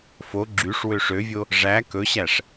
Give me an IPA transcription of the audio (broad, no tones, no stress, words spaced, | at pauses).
fo ɡ͡ǁyʂwø ʂøvʲo | ʐæ kɵɕæʂ